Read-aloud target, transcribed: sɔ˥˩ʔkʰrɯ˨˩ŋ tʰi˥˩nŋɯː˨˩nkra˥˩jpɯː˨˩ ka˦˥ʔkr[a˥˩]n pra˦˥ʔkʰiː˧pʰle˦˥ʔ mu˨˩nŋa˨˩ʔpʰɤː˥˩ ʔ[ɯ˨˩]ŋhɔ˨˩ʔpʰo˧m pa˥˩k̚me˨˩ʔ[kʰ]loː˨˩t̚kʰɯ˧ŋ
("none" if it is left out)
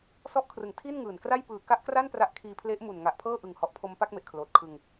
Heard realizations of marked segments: a˥˩, ɯ˨˩, kʰ

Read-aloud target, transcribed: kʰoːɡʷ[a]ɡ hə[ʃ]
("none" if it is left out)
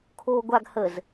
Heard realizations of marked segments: a, z

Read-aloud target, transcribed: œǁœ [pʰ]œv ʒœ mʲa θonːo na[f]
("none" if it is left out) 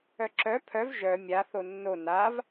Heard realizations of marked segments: pʰ, v

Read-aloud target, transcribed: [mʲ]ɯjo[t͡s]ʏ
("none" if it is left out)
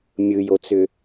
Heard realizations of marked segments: mʲ, t͡s

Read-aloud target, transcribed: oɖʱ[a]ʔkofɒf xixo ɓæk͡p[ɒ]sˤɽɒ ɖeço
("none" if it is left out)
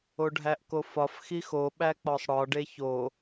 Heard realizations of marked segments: æ, ɒ

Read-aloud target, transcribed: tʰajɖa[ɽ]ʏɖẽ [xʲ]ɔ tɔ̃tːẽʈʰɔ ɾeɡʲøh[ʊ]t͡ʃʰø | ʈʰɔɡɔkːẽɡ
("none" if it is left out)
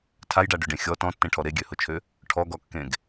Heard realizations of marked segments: ɖ, xʲ, ʊ

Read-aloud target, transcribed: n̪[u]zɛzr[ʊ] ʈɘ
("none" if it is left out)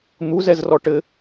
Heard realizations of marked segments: u, ɔ

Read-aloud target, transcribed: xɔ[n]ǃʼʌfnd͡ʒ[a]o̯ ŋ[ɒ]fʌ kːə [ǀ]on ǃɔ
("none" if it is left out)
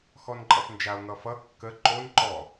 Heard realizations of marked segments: n, a, ʌ, ǃ

